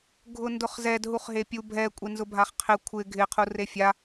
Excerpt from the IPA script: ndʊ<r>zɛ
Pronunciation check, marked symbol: incorrect: χ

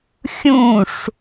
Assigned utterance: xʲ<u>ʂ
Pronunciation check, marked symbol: incorrect: ũ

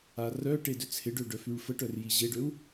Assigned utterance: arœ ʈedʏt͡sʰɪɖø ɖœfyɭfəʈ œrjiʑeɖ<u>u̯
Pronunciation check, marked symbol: incorrect: ø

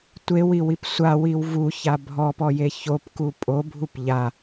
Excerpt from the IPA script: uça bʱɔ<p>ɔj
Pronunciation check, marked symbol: correct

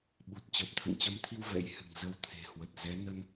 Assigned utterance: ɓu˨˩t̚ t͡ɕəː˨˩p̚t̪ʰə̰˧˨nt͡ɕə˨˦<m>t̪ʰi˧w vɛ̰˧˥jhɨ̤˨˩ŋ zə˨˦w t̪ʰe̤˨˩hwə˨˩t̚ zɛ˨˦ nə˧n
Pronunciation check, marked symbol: correct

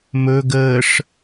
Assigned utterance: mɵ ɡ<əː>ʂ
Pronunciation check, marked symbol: correct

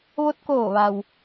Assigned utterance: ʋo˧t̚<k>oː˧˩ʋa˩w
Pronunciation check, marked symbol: correct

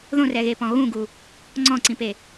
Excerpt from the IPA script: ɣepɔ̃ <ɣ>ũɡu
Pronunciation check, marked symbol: correct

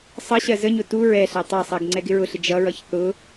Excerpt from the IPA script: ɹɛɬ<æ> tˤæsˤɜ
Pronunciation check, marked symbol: correct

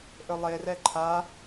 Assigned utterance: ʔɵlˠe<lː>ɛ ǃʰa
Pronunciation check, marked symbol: incorrect: r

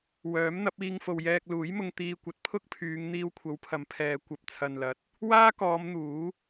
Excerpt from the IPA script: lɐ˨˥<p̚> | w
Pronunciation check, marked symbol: incorrect: t̚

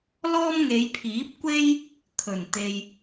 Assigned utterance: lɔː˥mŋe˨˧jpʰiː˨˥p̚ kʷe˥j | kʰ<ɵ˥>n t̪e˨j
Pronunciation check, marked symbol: incorrect: ɵ˨˩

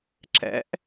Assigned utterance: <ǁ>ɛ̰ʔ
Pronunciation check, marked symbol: correct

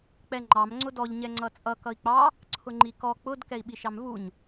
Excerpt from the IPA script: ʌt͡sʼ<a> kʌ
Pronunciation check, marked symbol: incorrect: ʌ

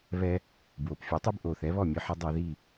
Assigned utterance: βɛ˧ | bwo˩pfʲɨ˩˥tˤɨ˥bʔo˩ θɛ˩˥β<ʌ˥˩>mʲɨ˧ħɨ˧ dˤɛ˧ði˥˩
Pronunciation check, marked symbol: incorrect: ɔ˥˩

